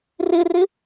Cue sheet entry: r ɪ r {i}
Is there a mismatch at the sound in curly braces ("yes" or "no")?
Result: yes